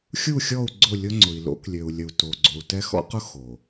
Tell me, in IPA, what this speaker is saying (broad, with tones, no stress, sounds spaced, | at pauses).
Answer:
xʲ u˦˨ xʲ ɔ˦˨ u̯ ɡ͡ǀ ʊ˦˨ lʲ ʊ˦ ŋ͡ǀ ʊ˨ i̯ l o̰˦ k lʲ ø˨ u̯ lʲ ə˨ u̯ t o˨ ɡ͡ǀ o˨ u̯ t ɛ˦ x ɔ̰˦ q ʊ˦ x o˨